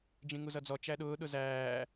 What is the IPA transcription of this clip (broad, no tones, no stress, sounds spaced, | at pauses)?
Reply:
d͡ʒ ĩ ŋ u z ʌ d͡z ɔ t͡ʃ æ ɗ ʊː ɗ ʊ z æː